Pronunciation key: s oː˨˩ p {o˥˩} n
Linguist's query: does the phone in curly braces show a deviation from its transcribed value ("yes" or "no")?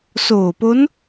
yes